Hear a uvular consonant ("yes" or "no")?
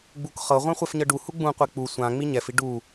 yes